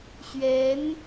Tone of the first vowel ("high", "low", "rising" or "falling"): rising